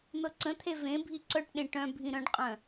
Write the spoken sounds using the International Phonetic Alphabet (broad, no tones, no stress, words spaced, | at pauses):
n̪ɤǀə̃t̪ʰe vẽbʱi ǀœʈɗẽ ʈœ̃ bʱĩɾœ̃ɖqʼœ̃